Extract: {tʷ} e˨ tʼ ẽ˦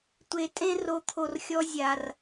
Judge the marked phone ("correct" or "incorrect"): correct